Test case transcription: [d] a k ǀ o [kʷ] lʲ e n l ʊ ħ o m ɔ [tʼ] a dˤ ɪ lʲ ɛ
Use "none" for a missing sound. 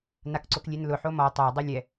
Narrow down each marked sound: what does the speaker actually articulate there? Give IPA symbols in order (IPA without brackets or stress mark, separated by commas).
n, k, tˤ